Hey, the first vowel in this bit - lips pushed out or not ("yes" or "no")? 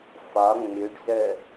yes